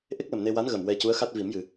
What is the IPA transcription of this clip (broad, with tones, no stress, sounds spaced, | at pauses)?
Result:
ʔ e˦˥ k̚ l ə˨˩ m n e˧ w a˧˥ n ɣ ə˨˩ m w ɛ˧ c u˧˥ ə̯ x a˦˥ t̚ v i˨˩˦ m j ɨ˨˩˨